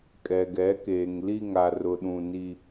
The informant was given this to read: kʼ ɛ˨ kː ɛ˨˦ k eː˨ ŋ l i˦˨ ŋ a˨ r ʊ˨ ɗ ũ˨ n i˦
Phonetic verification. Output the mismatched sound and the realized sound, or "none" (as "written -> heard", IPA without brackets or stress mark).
kː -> ɡ